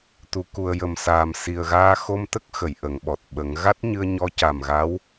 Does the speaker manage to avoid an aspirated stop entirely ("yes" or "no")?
yes